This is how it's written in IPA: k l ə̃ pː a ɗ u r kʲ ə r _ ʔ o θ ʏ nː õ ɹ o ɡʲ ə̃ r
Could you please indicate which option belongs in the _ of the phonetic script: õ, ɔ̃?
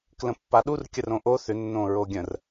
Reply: õ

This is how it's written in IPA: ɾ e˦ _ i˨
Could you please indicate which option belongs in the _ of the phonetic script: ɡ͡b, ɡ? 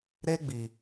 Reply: ɡ͡b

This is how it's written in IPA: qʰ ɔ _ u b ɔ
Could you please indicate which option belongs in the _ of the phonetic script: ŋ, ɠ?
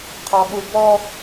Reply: ɠ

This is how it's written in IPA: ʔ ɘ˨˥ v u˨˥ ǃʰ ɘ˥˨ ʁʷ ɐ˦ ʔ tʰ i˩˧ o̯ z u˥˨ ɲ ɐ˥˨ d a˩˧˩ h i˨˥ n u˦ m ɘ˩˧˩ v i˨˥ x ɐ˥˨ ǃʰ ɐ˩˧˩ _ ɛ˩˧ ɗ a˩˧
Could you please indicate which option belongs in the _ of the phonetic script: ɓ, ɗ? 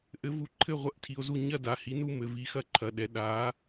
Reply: ɗ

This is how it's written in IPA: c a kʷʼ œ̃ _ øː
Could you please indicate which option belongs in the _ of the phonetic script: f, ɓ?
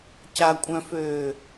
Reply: f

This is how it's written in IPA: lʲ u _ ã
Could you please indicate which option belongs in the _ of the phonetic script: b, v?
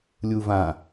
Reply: v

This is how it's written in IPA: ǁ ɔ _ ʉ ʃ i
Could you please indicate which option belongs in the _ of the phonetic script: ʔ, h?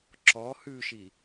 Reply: h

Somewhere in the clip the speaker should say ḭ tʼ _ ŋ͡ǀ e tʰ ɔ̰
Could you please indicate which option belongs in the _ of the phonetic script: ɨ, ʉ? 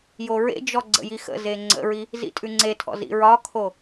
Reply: ʉ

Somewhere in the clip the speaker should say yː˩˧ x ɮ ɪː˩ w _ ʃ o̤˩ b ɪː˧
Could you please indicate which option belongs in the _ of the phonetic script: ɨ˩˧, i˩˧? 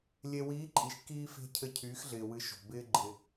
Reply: ɨ˩˧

